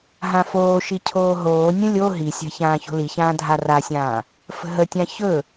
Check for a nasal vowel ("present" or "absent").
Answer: present